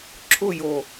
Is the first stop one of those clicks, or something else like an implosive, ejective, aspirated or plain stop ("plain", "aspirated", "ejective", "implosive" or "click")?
click